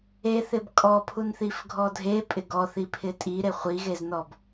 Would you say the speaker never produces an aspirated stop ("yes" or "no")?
no